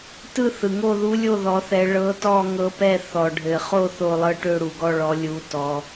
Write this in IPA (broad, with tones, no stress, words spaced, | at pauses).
tɯ˥˧θɯ˨ŋo˥˧ ðu˧˥lʲo˥˧ ðɔ˧˥θɛ˧˥ ɭɤ˧˥tɔ˥˧ŋɤ˧˥pɛ˥˧ θɔ˨ɖʱɘ˨χo˥˧ θo˥˧ lˠɤ˥˧ʈø˥˧ɽu˨ ɡɔ˥˧ ɭɔ˧˥lʲu˧˥ tɔ˧˥